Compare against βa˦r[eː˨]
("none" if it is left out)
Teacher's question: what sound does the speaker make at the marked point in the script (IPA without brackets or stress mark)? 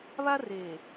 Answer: eː˨